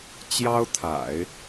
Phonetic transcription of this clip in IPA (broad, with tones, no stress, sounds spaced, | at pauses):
t͡ɕ j ɑ˥ ʊ̯ t̪ʰ a̰˨˩˦ ɪ̯